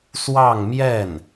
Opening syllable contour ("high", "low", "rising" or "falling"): falling